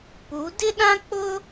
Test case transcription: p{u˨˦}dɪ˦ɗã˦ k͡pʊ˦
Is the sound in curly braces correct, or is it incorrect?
correct